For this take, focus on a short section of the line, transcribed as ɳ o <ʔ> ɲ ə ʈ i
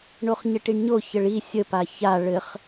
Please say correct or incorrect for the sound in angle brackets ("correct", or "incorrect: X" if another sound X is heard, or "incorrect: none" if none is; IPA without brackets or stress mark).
incorrect: χ